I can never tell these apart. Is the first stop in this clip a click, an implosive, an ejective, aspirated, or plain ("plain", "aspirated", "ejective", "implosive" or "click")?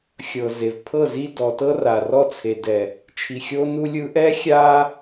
aspirated